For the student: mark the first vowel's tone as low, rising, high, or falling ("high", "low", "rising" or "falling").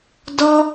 high